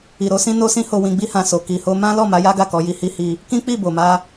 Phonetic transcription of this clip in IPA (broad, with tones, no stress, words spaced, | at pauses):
i˨ɾo˧sĩ˦ no˦sĩ˦ho˧ wĩ˧ɡ͡bi˦hã˧so˨ ki˨ho˧ mã˦lɔ˦˨ ma˨˦ja˦ɡa˦˨ kɔ˨˦ji˧hi˦ hi˧ | kĩ˦ k͡pi˦˨bo˨ma˧